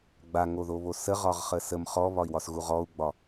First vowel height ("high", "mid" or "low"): low